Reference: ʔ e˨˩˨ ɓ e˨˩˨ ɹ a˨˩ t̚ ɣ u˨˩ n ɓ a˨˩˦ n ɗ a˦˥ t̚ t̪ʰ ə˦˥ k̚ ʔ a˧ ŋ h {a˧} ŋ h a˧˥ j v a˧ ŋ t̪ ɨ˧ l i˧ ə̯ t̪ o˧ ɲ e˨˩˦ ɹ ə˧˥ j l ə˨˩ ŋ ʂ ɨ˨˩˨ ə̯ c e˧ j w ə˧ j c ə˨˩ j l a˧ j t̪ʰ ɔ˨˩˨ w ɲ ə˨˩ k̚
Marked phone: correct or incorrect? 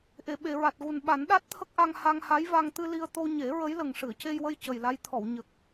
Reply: correct